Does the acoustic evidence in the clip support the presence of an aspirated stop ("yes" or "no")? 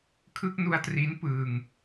yes